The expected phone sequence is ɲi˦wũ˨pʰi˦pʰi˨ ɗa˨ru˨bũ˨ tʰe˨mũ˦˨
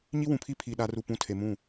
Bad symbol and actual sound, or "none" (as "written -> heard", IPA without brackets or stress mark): b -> p